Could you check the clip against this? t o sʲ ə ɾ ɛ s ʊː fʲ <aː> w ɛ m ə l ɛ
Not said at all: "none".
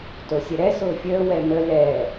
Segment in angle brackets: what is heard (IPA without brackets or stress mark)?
əː